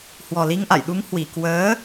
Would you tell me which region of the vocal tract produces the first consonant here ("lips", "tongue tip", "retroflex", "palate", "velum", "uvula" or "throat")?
throat